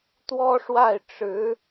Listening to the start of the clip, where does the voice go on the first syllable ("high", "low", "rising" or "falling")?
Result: high